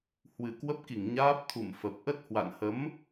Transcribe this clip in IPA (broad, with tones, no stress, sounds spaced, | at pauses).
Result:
h w ɨ˨˩ k w ə˦˥ p̚ k i˧˩ ŋ ɲ aː˦˥ p̚ t̪ʰ ṵ˧˨ m f ə˨˩ p̚ ʔ ə˦˥ t̚ h w a̰˧˨ n h ə˨˦ m